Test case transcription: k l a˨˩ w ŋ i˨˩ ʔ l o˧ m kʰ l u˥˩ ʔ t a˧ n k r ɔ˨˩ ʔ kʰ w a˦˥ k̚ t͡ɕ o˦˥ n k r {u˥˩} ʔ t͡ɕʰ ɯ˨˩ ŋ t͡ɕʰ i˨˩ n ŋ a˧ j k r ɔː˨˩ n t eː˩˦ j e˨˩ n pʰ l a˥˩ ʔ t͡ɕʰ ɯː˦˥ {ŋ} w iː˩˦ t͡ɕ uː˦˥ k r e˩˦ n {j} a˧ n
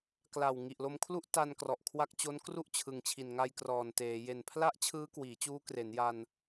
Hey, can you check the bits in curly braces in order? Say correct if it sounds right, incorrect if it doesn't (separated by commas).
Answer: correct, incorrect, correct